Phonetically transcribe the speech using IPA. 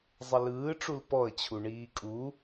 zˤ ə l ɯː ʈ͡ʂ u l p ɔ ə̯ t͡ɕʰ u ɳ iː kʼ u

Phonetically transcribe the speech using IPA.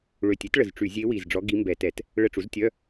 ɭ ø˨˩ tʲ e˩˥ t ɭ ə˨˩ z ʈ͡ʂ y˧˩˧ zʲ e˧˥ w i˨˩ z ɖ͡ʐ ɔ˧˥ ɡ i˧˥ m b ɛ˧˩˧ t ɛ˧˩˧ t | ɭ ə˧˥˧ ʈ͡ʂ u˩˥ z tʲ œ˧˥˧

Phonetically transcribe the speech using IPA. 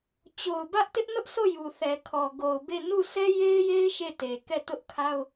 t͡ɕ o˨ ʊ̯ b ä˦ ʔ t ɪ˦ ʔ n ʊ˦ ʔ sʰ o˦˨ j u˨ θ ɛ˨ kʰ ɔ˨ ɡ o˨ ʊ̯ b e˦˨ n u˦˨ sʰ ɛ˦ j e˦ ɪ̯ j e˦ ɪ̯ ʃ e˦˨ t e˨ k ɛ˦˨ t ʊ˦ ʔ kʰ a˦ ʊ̯

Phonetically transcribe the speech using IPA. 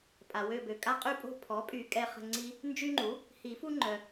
pʼ a˨ w ø˦˨ b ø˨ kʼ a˦ qʼ y˦ pʼ o̤˦ pʰ ɔ˩˥ pʼ y˨ kʼ ɛ˦˨ χ ə̤˦˨ ŋ͡ǀ i˦ | n d͡ʒ y˦ ŋ͡ǃ u˩˥ | h i˨˩˦ f u˦ ŋ͡ǃ œ˨

